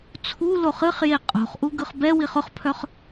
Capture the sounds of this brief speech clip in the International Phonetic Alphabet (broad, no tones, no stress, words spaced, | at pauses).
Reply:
t͡sʰu loχɨχje qʼo̤χʔu ɡɯχbɛwiχ ʊχpʰœχ